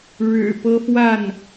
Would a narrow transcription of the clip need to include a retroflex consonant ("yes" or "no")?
yes